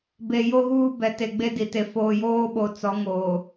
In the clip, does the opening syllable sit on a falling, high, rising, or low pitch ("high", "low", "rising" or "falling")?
low